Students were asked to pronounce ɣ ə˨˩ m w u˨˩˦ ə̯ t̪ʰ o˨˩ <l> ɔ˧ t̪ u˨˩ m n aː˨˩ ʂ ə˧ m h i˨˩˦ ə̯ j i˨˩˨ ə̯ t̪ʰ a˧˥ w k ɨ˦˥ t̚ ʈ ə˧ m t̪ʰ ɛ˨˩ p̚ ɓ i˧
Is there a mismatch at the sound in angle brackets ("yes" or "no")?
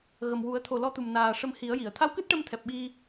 no